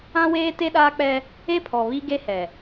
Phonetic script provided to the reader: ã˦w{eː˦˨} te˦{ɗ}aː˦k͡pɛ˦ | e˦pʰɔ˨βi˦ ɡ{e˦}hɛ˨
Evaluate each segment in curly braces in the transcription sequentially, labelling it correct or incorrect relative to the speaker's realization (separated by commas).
incorrect, correct, correct